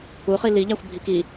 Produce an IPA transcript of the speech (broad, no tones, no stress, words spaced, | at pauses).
uχi liʎæxʷbʱik i